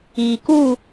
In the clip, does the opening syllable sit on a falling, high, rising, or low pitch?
low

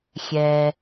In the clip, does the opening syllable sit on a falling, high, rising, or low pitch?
low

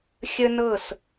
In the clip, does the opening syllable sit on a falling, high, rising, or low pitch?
high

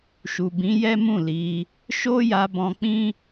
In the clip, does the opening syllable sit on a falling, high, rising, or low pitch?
low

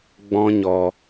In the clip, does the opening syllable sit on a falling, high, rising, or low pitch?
high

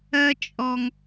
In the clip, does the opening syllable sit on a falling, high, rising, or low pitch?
high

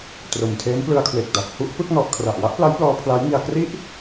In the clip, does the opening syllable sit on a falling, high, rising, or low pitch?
low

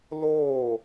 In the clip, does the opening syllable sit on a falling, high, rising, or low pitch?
falling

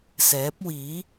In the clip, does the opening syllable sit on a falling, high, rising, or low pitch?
rising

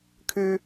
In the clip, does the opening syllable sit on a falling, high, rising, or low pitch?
high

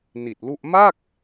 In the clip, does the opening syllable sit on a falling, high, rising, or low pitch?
low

